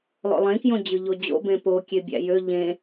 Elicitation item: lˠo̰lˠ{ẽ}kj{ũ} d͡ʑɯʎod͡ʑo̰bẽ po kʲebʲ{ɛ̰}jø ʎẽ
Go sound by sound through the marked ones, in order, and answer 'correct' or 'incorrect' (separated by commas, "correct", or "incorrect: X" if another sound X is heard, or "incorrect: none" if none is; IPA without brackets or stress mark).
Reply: correct, incorrect: õ, incorrect: æ̰